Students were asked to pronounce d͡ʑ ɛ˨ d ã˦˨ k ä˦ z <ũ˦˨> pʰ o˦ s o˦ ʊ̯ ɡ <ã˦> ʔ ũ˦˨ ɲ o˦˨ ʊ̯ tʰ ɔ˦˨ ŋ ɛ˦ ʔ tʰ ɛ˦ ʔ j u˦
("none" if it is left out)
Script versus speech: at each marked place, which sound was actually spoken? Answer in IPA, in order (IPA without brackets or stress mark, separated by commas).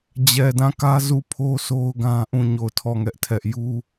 u˦˨, ã˦